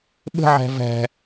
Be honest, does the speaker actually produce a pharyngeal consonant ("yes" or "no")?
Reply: yes